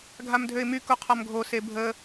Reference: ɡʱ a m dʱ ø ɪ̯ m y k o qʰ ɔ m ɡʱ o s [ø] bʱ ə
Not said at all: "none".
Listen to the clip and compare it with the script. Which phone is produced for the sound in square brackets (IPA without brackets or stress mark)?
e